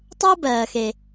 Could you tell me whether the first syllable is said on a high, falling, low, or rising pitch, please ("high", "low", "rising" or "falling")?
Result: high